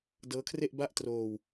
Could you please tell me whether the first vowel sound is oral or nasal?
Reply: oral